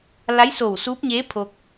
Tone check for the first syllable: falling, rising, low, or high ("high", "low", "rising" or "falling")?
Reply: rising